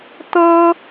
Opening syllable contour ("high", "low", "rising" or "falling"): high